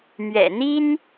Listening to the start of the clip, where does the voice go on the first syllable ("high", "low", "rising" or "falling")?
low